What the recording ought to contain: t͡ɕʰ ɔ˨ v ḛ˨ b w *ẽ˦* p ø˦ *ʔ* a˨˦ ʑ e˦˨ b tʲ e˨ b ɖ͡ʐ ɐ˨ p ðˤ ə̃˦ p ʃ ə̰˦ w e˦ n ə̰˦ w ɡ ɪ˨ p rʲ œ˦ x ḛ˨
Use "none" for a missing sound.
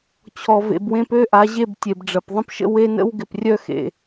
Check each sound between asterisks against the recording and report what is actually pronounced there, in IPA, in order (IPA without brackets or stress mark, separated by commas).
ẽ˦, ʔ